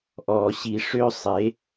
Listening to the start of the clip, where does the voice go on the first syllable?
low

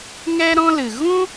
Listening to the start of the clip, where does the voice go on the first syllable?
high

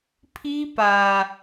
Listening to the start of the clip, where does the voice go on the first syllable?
high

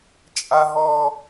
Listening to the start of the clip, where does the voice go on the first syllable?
high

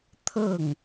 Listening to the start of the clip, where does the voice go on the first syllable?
falling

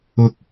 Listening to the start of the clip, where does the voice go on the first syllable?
low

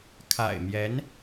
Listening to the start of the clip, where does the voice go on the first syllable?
low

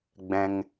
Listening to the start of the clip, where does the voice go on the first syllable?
low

